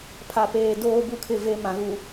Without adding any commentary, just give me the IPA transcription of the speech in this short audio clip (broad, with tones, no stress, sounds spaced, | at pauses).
pʰ a˨ p eː˨ d oː˦ b u˦ kʰ ɪ˦˨ v e˦ m ã˨ ɣ u˨